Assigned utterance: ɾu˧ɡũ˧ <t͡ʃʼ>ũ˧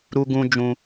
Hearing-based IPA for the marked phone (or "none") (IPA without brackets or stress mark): d͡ʒ